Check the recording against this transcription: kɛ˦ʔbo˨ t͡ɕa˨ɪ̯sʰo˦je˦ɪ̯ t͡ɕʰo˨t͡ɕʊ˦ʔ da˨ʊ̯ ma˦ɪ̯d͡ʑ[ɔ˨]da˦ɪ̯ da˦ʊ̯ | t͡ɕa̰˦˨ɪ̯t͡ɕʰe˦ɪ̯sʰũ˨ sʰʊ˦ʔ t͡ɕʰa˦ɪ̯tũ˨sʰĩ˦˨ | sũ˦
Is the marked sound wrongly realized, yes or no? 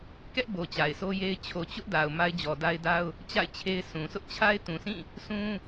no